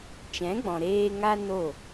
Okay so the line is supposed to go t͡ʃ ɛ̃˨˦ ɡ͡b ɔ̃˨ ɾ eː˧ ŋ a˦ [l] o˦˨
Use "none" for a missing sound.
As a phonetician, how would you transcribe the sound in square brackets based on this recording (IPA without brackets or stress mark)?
n